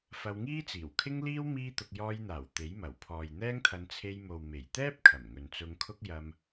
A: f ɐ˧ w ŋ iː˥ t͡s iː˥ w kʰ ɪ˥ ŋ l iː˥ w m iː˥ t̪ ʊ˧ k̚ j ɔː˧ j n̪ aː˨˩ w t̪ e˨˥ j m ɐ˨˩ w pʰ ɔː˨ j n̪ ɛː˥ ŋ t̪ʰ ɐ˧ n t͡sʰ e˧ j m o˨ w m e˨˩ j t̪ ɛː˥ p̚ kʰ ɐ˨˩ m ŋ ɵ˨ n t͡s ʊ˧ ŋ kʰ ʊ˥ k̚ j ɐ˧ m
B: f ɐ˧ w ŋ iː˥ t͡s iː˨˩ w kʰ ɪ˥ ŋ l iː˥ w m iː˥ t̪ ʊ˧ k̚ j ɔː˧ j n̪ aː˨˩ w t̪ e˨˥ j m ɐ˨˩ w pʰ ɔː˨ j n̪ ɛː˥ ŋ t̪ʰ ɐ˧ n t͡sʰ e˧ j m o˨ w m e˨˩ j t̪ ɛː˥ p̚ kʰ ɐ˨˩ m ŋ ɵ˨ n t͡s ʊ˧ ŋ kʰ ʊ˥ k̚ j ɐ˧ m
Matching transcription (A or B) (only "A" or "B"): B